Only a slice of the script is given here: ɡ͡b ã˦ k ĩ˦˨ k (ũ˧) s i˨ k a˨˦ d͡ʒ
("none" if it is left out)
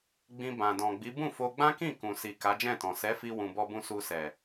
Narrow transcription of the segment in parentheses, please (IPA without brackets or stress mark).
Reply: ũ˨